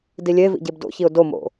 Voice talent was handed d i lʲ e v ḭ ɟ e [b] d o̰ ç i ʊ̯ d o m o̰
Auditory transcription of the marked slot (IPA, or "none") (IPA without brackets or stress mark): b